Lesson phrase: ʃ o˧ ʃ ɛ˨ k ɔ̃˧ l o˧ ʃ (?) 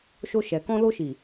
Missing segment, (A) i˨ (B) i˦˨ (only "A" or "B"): A